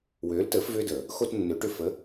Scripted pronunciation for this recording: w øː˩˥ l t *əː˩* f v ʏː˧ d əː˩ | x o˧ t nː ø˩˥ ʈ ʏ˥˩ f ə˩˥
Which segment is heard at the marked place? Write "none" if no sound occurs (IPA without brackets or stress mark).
əː˩˥